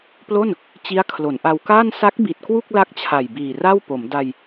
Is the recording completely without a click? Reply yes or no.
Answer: yes